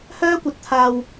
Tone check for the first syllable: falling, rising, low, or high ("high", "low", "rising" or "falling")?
high